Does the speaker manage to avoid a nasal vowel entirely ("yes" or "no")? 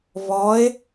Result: yes